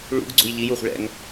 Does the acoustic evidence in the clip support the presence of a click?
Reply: yes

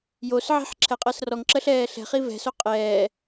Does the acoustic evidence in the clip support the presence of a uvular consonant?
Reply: yes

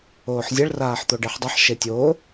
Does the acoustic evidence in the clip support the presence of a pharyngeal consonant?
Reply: yes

